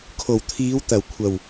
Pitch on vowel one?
low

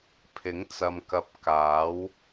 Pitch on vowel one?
rising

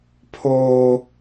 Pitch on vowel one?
high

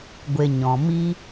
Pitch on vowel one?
low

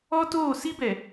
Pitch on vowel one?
high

